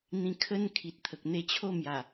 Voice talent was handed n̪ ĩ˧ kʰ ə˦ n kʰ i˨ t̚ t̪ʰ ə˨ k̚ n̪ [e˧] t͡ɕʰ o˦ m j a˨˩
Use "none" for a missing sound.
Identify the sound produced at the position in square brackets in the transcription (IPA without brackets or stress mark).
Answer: e˧